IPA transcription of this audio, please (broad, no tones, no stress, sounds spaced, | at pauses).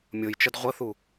mʲ o j t͡ʃ ə d ʁʷ ə θ u